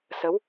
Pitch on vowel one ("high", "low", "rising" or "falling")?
rising